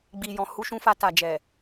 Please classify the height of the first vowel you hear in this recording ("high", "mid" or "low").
high